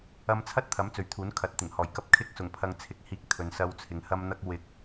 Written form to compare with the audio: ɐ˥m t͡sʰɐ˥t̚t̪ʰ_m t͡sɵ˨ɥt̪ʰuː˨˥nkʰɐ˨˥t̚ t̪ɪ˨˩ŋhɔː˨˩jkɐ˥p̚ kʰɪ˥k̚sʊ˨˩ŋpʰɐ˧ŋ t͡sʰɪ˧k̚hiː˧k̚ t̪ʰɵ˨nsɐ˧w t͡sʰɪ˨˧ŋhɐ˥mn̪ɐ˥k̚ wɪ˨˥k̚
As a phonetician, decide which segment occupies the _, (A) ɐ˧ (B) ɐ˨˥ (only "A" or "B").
B